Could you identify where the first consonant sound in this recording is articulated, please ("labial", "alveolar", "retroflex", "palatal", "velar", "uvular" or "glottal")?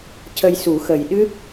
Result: palatal